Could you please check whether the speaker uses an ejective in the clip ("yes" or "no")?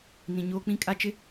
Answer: yes